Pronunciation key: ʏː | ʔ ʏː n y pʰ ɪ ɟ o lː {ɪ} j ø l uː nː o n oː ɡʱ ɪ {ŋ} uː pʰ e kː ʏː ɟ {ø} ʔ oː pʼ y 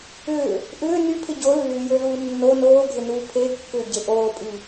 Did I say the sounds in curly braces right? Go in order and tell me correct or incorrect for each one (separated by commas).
incorrect, incorrect, incorrect